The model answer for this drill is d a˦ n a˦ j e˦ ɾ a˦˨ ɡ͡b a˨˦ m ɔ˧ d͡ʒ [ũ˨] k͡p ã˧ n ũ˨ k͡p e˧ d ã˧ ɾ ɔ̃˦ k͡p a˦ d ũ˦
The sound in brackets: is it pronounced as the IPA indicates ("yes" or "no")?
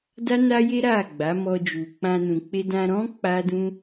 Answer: no